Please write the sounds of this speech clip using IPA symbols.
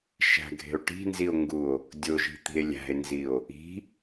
ʃæ̤ɡʱe̤o̯ ʈi̤nzio̯ŋɡuo̯ | dʲoʒi̤t̪i̤e̯ lʲæ̤e̯nzio̯ | i̤

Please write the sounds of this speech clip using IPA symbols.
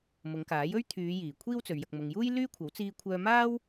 mʊ˨˧ŋkaː˨˥jɵ˥ɥ t̪ʰyː˨˧ jiː˨˩kʷʰiː˥wt͡sɵ˨ɥ jɐ˨k̚mʊ˨ŋjuː˥j lyː˥kʷʰɐ˨˥w t͡siː˧kʷʰœː˧maː˥w

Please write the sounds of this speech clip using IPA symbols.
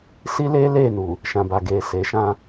si˦leː˦ leː˦˨nu˨ | ʃã˨ba˨ɡeː˨ se˨˦ʃã˦

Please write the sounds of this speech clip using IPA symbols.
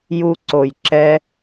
ju˧ǀo˨j ǁɛ˧

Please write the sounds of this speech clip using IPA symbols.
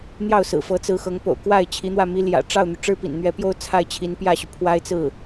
n̪jɑ˥˩ʊ̯sɹ̩˨˩fɤ˧˥ t͡sɹ̩˧˥xɤ˧˥ŋpo̰˨˩ʊ̯ kwa˥˩ɪ̯t͡ɕʰi˧˥n̪wä˥˩ mi˧˥ljä̰˨˩ʈ͡ʂɑ˥˩ʊ̯n̪y˩ ʈ͡ʂɻ̩˥pḭ˨˩nn̪ɥɛ˧˥pjo˥ʊ̯ t͡sʰa˥˩ɪ̯t͡ɕʰi˧˥npjä˥˩ɕy˩ pʰwa˥ɪ̯t͡sɹ̩˥˩

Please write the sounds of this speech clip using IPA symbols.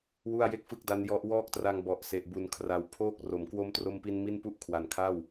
wu˥˩a̯je˥˩k̚fɯ˥˩k̚da˦˥n jɔ˦˥ʔwɔː˥˩k̚tra˧ŋ bɔ˨˩ʔse˨˩ʔbu˨˩n kʰra˨˩w pʰoː˥˩k̚ro˨˩m kwo˦˥mtro˧mpi˧n mi˥˩npu˥˩ʔ kʰwa˨˩nkʰa˥˩w

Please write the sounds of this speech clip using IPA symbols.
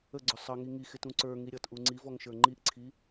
əɡ͡ǀʊ sˤʌŋi ŋixɪtũ ǀə˞ŋi ɾʲʌtʔu ŋ͡ǀivɔŋʃə˞ ŋ͡ǃiʔǀʰi

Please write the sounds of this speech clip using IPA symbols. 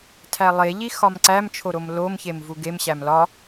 tʰælˠeʎi xɒmǀæmt͡ʃʰo ɾomlomçem vuɡemɕæm lɒ

